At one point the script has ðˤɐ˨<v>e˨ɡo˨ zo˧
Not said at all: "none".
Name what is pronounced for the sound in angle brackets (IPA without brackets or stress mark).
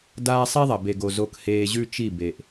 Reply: b